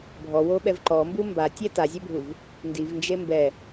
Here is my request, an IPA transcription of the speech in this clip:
bʱɔwoɓɛv ǃɔmbu mbatʲɛ tazʲɛbʱuv | ndivnd͡ʒe mbɛ

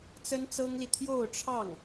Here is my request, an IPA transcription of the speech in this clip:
t͡sə˥nt͡sɤ˥ŋli˨ t̪ʰjo˥˧ʊ̯ʈ͡ʂʰɑ˥˩ŋ

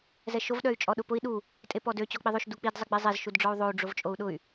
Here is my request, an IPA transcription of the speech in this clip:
zɛʃov ɗœy̯t͡ʃʼɔɗʊpʊi̯ ɗu | tʼepɔdø t͡ɕɔk͡piðˤøʃ duk͡pid zˤɪɡ͡bizˤez ʃudɖ͡ʐɔu̯ðˤou̯ ɖ͡ʐovt͡ʃʼou̯ɗʊy̯

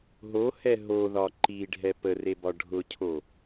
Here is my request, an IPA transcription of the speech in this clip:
ɦo hɛɦoðɒ ǃiɖʱɛ pəre bɒɖʱʊcʰo

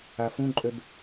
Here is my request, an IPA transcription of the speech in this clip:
afũǃʼøb

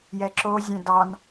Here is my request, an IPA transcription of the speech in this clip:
jɛǁozʲɛ̃ dɑn

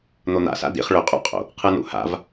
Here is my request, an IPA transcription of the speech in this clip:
n̪on̪a̰sa̰ dḭχ ɭɵqʼṵqʼo̰ | qʰɯnṵha̰v

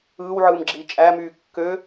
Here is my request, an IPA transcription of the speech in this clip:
ɯːwʕɯːmɡ͡ǁiː t͡ʃʼæmyː kːø

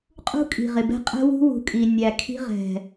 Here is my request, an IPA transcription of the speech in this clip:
qʼṳ˦kʼi̤˨ʁɪ˨bɛ̤˦ qʼɛ̤˦wṳ˦ wṳ˨kʼi˨ nʲæ˨kʰi̤˧ʁɛ̤˨

